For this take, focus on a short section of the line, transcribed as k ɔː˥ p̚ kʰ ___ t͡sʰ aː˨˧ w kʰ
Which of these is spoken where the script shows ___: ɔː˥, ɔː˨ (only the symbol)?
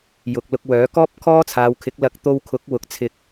ɔː˥